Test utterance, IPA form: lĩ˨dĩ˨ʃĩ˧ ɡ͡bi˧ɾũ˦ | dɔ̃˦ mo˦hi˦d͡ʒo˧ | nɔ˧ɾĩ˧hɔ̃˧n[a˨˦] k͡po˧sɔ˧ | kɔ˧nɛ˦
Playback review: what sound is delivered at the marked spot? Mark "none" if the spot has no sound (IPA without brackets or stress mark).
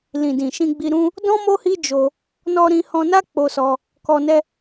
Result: a˦